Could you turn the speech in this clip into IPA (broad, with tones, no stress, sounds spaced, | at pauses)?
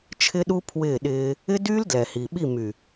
t͡ʃʰ ɪ˦ ɗ u˦ pʰ w ɪː˦˨ ɗ ɪː˦ | ɪ˦ d yː˦ l d l ɛ˨ h i˨ ɓ i˦˨ m y˨